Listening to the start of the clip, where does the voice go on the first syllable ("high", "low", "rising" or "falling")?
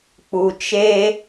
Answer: low